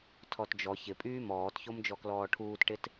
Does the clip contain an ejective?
yes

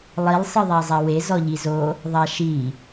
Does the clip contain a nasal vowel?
no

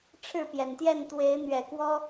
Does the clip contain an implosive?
no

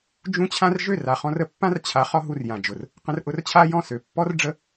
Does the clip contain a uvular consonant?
yes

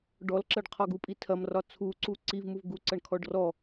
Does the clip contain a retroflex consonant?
yes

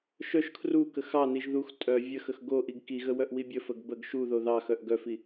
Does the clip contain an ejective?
yes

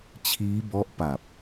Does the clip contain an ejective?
no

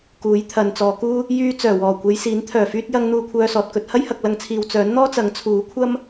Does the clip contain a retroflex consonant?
no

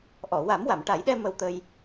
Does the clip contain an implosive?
yes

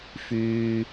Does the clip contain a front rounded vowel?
yes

